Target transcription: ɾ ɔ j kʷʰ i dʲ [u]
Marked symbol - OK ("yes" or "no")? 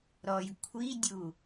yes